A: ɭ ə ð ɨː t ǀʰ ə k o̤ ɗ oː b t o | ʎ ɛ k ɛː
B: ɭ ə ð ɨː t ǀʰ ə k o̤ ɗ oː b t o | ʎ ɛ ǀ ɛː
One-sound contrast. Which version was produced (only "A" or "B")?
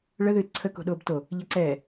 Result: B